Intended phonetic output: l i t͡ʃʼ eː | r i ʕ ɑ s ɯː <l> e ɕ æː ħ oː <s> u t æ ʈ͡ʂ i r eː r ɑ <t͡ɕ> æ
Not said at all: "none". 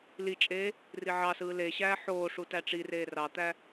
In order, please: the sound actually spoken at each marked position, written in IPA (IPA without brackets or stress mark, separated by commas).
l, ʂ, t̪